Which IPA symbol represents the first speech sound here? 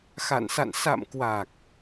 x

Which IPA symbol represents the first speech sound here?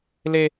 l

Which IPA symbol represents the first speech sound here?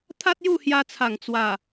t̪ʰ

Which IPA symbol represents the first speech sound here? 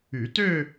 y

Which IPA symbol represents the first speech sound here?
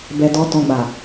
b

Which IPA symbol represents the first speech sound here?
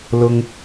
l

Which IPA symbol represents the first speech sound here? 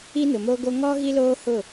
i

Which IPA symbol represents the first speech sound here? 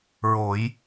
ɹ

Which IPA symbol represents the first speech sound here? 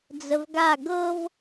d͡z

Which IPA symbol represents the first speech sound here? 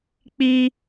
k͡p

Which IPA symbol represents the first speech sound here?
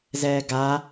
z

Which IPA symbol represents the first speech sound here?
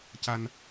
c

